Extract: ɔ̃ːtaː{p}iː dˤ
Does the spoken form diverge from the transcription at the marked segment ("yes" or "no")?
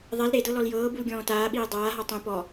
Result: yes